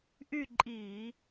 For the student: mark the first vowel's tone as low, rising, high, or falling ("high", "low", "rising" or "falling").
falling